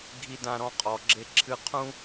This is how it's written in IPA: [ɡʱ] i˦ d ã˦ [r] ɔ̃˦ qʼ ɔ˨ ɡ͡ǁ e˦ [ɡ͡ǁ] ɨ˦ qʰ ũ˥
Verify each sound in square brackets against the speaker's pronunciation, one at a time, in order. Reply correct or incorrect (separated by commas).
correct, incorrect, incorrect